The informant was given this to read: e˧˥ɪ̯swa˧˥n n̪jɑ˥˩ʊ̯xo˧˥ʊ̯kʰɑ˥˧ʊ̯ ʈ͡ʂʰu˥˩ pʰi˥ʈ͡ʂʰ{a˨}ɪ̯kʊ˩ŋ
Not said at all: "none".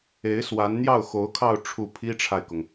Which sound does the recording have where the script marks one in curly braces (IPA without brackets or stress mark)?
a˨